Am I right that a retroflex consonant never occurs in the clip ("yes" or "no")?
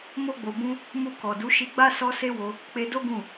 yes